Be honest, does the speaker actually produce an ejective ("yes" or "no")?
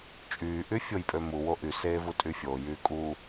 yes